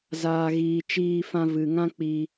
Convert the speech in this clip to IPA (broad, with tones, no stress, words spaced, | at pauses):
zaː˨ɣiː˨ t͡ʃiː˧fã˧vɨ˨ŋã˦ k͡pi˧